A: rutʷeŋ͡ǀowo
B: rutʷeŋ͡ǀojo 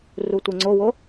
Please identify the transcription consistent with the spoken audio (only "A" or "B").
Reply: A